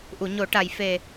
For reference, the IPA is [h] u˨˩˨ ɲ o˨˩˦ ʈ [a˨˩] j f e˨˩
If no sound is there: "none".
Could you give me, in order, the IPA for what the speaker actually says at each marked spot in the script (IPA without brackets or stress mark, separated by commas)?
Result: ʔ, a˨˩